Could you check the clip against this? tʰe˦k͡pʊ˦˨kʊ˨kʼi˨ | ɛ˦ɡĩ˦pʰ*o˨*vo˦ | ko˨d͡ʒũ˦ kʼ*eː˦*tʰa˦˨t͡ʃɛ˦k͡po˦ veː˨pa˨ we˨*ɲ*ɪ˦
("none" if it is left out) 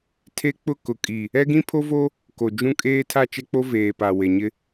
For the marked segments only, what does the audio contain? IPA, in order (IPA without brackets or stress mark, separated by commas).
o˦, eː˦, ɲ